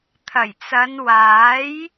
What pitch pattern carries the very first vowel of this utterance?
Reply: low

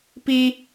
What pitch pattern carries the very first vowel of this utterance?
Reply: high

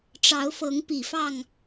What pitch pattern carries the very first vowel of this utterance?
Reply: rising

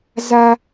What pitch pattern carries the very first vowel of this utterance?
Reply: low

